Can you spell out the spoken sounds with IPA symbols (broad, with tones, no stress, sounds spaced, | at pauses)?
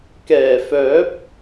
k ɛː˨˩ f œː˨˥ p̚